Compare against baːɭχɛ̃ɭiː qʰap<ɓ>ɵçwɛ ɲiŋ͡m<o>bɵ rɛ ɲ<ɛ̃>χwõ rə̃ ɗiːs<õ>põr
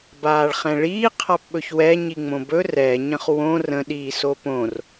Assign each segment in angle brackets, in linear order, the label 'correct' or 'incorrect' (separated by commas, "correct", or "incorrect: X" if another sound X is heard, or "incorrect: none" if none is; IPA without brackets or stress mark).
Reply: correct, incorrect: õ, incorrect: ə̃, incorrect: o